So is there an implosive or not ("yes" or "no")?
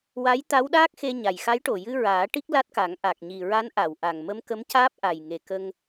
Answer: yes